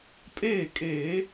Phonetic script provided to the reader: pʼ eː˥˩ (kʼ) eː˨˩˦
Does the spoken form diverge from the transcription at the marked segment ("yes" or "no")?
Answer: no